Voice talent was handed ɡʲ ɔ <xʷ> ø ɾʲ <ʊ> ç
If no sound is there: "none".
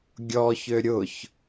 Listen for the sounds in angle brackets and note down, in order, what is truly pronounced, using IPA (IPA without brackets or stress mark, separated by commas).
ç, ʊ